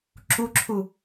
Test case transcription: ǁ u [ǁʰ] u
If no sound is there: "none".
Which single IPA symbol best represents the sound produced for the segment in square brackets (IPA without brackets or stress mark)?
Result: ǁʰ